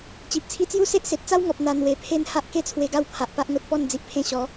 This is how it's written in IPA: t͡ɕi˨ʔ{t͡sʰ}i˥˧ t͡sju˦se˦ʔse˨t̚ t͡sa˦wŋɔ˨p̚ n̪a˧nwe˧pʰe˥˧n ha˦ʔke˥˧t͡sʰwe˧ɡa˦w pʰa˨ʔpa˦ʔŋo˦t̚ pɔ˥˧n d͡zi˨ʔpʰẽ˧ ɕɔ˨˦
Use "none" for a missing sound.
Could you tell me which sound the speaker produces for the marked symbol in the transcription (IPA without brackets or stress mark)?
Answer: t͡sʰ